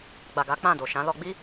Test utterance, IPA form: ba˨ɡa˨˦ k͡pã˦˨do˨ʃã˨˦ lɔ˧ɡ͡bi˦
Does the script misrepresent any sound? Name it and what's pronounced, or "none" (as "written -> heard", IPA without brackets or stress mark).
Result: b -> ɡ͡b